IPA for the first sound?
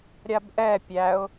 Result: ɾʲ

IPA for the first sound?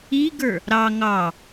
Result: i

